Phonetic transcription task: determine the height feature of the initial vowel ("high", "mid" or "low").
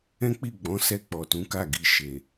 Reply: mid